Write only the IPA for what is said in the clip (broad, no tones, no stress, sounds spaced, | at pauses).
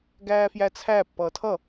ɡ æː f j æ t͡sʰ æ pː ʌː tʰ ʌ